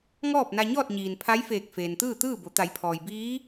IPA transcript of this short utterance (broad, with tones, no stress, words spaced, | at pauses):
ŋɔː˥˨p̚na˧ɲɔː˥˨t̚ɲiː˩n pʰa˧˥j feː˧˩k̚feː˩n t̪ɯː˥˨t̪ɯː˥˨bo˩˧ t̪a˩˧jpʰɔː˩j biː˧˥